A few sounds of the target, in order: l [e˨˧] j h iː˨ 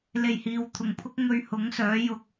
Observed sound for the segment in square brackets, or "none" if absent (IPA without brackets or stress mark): e˨˩